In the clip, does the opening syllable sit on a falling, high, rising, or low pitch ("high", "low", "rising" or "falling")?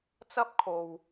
high